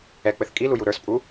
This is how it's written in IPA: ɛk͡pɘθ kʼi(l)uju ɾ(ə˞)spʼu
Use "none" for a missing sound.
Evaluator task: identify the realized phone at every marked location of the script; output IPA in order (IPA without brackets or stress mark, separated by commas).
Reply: l, ə˞